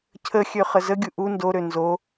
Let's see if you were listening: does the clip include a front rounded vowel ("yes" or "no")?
yes